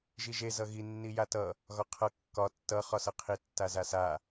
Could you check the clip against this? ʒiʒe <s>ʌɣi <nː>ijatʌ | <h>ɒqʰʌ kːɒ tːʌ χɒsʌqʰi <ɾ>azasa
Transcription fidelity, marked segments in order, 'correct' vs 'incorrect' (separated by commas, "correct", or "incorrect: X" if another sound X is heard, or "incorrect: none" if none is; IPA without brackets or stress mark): incorrect: z, correct, incorrect: ɣ, incorrect: tː